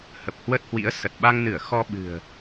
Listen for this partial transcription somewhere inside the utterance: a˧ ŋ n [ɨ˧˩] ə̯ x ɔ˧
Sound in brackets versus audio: correct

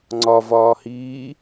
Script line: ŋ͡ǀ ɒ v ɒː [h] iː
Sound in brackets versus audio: correct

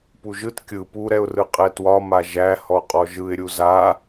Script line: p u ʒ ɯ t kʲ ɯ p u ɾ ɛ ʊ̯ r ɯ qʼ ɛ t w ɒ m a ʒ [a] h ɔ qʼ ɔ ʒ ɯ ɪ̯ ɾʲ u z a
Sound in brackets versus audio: incorrect: æ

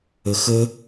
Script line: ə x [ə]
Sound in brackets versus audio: correct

